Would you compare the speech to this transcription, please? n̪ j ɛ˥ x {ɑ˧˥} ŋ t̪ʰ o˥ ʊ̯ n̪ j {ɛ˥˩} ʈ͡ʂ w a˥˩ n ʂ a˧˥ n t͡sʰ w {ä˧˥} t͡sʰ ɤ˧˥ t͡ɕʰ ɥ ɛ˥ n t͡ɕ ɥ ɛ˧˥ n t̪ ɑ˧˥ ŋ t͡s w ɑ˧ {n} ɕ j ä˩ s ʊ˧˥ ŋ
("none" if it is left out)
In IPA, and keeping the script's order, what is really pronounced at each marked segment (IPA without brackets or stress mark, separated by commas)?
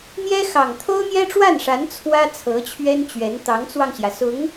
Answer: ɑ˨˩, ɛ˥, ä˥, ŋ